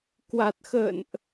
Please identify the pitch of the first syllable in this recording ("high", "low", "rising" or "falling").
low